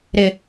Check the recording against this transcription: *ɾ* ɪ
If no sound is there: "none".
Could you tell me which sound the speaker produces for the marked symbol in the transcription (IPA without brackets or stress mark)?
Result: ɾ